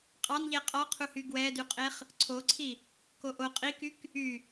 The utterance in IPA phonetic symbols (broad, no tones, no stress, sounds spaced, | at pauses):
qʼ ɑ n ʎ ɛ qʼ ɔ qʰ u h y ɡ w ɛ d y qʼ e χ | ǀʰ o ǀʰ i | k o ʔ o qʼ i k y k | y